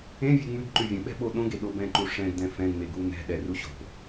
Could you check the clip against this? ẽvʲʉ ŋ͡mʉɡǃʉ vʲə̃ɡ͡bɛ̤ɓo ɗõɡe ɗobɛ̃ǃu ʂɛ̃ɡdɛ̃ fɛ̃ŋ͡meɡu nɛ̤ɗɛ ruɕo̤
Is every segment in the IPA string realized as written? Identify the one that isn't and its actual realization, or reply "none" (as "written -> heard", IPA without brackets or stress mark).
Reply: ɡ͡b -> ɓ